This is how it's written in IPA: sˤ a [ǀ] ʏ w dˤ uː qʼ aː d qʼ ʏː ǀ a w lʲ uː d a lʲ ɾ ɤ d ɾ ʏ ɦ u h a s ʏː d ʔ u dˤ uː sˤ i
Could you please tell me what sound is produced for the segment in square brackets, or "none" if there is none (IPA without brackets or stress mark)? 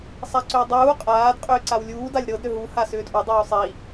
ǀ